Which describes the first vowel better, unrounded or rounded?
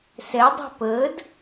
unrounded